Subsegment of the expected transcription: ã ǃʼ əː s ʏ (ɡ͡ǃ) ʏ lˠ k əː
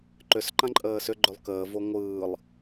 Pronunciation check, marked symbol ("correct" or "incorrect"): correct